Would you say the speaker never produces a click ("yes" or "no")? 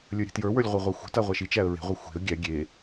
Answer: yes